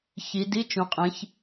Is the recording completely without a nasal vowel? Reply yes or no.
no